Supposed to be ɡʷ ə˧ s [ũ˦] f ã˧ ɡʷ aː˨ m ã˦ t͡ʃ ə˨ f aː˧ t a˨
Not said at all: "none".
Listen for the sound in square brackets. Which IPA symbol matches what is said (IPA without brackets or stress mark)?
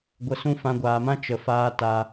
ũ˦